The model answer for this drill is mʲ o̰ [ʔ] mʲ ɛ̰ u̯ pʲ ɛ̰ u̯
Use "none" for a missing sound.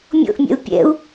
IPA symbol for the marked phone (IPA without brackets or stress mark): ʔ